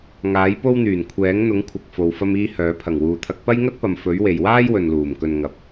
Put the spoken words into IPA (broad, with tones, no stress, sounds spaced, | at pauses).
ŋ aː˨˥ j p o˥ w n̪ yː˨˩ n kʷʰ ɛː˨˥ ŋ n̪ ʊ˨˥ ŋ kʷʰ ɐ˨ k̚ f o˨ w f ɐ˥ m iː˥ h œː˨˥ pʰ ɐ˨˩ ŋ w uː˨ t̪ʰ ɐ˧ k̚ p ɐ˥ j ŋ ɐ˥ t̚ p ɐ˨ m f ɵ˨˥ ɥ w e˨ j w aː˥ j w ɵ˨ n l uː˨˩ m k ɵ˨ n ŋ ɐ˨˥ p̚